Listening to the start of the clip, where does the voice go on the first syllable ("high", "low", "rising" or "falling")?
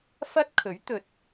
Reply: high